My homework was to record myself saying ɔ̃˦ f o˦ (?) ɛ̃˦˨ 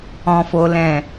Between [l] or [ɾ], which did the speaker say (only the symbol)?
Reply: l